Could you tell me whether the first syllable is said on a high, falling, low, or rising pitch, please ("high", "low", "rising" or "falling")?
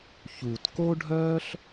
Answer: low